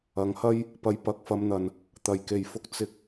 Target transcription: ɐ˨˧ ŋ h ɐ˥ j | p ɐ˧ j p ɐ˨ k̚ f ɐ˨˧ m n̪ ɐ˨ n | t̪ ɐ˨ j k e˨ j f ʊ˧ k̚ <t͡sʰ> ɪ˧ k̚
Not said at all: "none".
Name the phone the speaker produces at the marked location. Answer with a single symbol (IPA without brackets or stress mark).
t͡s